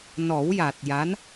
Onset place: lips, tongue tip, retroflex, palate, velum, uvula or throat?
tongue tip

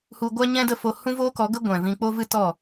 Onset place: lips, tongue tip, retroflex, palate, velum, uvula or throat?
throat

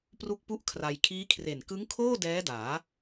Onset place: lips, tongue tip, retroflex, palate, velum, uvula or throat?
lips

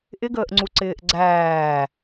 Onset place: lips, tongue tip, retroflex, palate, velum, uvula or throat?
throat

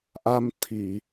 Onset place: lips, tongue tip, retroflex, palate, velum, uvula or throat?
throat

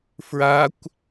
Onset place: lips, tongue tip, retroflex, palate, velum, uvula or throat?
lips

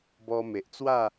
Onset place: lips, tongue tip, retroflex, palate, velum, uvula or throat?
lips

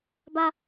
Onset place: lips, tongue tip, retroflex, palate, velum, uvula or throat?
lips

